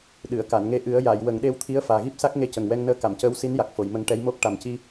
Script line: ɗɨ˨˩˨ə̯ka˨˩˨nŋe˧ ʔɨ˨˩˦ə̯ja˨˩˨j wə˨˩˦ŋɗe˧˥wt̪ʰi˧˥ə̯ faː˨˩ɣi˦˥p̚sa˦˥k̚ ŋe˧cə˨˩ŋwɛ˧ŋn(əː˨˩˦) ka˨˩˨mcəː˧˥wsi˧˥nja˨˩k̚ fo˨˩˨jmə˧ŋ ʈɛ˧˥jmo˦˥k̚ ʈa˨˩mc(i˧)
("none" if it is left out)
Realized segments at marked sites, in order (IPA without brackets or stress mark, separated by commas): əː˧˥, i˧